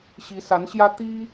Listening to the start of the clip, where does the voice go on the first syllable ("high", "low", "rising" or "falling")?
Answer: rising